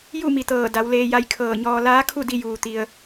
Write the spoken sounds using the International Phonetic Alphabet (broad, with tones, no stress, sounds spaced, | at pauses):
j u˥˨ m i˩ t̪ ɤː˧˩ d a˩˧ w l eː˧ j a˧ j kʰ ɤː˧˩ ɲ ɔː˧ l aː˧˥ kʰ u˥˨ d i˧ j uː˩ t̪ i˩ ə̯